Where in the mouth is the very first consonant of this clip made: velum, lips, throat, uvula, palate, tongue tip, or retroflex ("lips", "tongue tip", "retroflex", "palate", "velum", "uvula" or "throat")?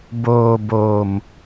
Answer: lips